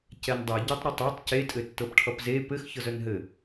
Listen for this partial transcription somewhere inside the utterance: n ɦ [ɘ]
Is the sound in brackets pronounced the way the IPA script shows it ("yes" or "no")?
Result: yes